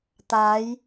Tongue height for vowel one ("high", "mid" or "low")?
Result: low